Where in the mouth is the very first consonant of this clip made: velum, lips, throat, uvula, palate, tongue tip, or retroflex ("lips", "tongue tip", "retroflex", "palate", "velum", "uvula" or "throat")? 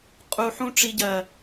uvula